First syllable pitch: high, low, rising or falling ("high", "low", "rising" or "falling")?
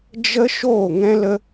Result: high